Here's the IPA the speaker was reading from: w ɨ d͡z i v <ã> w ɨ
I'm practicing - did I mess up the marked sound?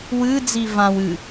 no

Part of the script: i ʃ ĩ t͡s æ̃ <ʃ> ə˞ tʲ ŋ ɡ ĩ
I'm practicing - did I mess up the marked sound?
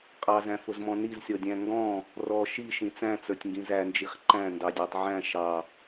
yes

